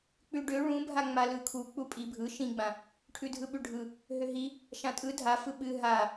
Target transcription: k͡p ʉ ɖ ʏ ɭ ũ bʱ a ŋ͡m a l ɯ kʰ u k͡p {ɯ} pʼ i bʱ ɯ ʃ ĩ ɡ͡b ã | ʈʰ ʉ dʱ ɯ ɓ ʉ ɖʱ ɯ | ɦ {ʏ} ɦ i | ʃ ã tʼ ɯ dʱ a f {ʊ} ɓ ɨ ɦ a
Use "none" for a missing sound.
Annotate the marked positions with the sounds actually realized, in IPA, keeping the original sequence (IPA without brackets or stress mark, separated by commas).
u, ʏ, ɯ